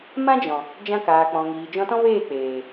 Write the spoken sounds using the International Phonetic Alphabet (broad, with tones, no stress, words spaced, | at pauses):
mã˦d͡ʒɔ̃˨ | d͡ʒã˧kaː˨k͡pɔ̃˨ŋiː˨ d͡ʒɔ̃˧tɔ̃˦veː˦˨ k͡peː˨